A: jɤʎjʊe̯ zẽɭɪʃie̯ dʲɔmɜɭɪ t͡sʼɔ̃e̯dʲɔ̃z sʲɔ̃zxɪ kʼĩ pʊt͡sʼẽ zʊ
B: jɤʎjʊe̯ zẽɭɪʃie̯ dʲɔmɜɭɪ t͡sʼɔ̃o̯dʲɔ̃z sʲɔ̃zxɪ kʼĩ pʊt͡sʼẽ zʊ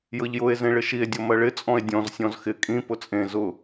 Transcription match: A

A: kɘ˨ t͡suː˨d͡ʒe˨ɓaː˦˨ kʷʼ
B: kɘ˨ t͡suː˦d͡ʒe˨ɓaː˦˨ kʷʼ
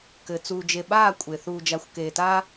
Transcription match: A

